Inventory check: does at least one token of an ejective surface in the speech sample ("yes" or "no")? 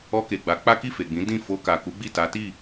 no